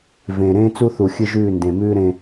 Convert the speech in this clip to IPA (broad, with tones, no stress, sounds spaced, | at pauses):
v ẽː˨ ɾ ẽː˦ t͡s u˦ θ u˨ xʲ ɨ˦ ʒ ʉː˦˨ n d ẽ˨ m ʉː˦ ɾ ẽ˦